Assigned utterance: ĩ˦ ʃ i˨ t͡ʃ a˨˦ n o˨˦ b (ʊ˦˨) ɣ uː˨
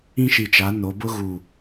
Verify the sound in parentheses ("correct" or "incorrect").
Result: incorrect